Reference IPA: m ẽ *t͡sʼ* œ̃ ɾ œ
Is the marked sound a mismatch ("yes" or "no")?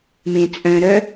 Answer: no